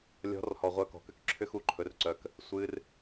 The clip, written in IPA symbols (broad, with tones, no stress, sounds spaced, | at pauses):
lʲ ɔ̤˨˦ r h ɔ˨ ʁʷ œ˧ k ɔ̤˨ k ʏ˦ k ǁʰ ʏ˦ x u˧ ǃʰ ɵ˧ r ǀ œ˧ k | sʷ ɨ˧ r